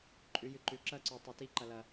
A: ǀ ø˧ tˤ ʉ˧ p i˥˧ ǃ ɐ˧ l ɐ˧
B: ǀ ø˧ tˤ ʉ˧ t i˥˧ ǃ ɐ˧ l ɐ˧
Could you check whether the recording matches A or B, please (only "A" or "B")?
B